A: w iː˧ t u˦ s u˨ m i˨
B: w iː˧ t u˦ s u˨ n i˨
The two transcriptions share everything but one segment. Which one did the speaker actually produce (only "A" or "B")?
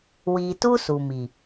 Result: A